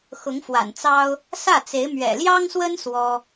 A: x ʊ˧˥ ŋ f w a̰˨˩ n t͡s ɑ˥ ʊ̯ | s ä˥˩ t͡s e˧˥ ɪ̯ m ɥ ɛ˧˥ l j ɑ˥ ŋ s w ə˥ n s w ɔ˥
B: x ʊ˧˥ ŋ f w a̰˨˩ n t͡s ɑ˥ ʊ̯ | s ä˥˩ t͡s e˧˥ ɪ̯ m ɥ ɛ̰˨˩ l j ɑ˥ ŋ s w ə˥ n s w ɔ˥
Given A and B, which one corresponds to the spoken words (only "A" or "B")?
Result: B